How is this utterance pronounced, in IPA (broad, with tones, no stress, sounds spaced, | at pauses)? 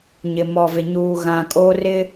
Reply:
ɲ ɪ˨ m ɔ˨ v ɪ˨ ɲ uː˨ ɣ ã˨ kʼ oː˦ r ɪ˦